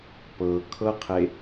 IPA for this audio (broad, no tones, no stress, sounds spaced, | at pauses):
p ɤ kʰ ɤ qʰ e